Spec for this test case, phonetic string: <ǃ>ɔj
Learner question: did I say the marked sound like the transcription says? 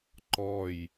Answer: yes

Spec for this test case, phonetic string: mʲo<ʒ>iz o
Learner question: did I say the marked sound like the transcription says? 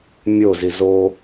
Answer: no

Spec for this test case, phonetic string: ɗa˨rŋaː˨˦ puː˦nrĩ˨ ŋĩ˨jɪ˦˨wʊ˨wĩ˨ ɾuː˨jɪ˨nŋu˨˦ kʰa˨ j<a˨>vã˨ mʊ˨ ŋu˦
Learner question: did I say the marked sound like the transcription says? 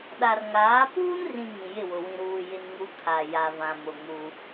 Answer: yes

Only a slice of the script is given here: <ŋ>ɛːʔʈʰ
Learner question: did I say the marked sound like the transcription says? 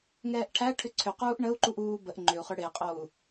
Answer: yes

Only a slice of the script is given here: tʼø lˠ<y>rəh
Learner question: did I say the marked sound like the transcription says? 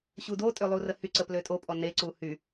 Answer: no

